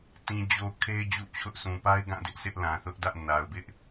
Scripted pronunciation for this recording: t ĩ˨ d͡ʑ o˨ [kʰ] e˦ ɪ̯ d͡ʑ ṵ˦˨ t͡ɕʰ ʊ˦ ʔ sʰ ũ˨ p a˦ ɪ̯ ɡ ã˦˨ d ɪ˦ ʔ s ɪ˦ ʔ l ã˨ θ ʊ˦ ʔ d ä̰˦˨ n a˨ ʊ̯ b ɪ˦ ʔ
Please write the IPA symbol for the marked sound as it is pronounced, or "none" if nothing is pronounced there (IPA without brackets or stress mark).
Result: kʰ